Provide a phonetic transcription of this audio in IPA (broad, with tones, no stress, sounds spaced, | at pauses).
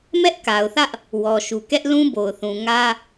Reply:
m ɛ˦ ʔ k a˨ ʊ̯ θ ä˦ ʔ | w ɔ˨ ʃ u˨ k ɛ˦ ʔ l ũ˦ b o˨ ʊ̯ θ ũ˨ ŋ ä˦